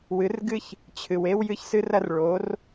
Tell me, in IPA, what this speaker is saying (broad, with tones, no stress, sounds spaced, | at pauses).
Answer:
w ɨ˨˥ r ɡ ɨ˥ ç | t͡ɕʰ ɨ˨ w e˥ w j ɨ˥ ç s ɨ˥ r ɐ˥ r ɭ o˨˥ r